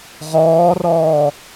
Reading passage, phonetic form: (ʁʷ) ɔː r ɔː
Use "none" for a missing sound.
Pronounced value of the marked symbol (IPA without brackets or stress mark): ʁ